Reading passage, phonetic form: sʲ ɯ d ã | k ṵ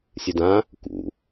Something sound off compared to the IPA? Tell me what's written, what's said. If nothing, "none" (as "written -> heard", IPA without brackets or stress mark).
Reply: none